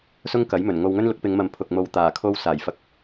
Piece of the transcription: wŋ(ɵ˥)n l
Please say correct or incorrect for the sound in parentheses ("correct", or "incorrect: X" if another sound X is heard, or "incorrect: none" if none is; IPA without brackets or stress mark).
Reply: correct